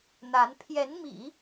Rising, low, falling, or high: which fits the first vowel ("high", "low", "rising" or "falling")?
rising